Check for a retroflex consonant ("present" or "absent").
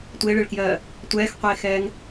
present